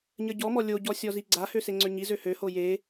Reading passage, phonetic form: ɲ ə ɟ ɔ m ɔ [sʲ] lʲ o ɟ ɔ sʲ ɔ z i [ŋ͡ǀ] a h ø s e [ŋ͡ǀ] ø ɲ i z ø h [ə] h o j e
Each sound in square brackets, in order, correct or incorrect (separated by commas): incorrect, incorrect, correct, incorrect